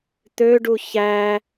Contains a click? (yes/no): no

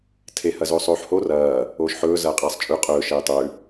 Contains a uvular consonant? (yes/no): yes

